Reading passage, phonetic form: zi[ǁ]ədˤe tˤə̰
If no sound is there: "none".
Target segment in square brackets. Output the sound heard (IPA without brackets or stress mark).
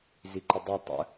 ǃ